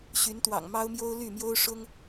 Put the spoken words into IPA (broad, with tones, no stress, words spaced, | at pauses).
ɕy˨˦nt̪wɑ̰˨˩ŋmɑ˦ʊ̯mjo˦ʊ̯ ly˥˨mjo˦ʊ̯ ʂʊ˦ŋ